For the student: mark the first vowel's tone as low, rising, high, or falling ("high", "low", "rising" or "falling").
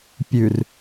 low